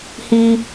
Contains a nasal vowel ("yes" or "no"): no